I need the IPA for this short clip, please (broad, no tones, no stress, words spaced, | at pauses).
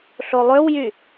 ɬolˠøwjy